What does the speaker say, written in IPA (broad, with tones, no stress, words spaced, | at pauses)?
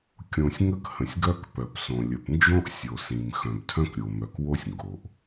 kʲõ˩sʲ ŋə˥khə̃˩sʲɡœ˥k pœ˩psõ˩ lʲə˩pnd͡ʒõ˥ʔ sʲo˩ sĩ˩m xœ̃˩btʰœ̃˥kɾʲo˩mœ˩k wo˥sʲŋɡo˩ʔ